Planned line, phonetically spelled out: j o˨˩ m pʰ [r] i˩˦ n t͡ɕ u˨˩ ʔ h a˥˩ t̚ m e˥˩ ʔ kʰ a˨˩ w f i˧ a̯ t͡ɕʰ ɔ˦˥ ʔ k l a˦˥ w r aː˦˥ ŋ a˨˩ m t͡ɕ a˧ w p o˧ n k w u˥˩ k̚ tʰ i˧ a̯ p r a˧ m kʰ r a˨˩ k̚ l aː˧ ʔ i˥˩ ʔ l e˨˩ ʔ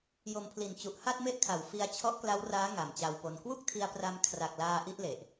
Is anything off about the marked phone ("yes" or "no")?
yes